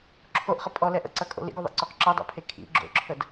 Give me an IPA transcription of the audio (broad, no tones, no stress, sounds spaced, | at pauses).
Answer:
ǁʰ o ʔ χ ʌ pʼ ɔ l ɛ ʔ ə̰ ǀ ɐ kʼ o̰ l ḭ ɡ o ðˤ ḭ ǀ o q ǁ ʌ dˤ ɛ̰ pʰ e kʰ ḭ ɡ͡ǁ o̰ ǁʰ ə d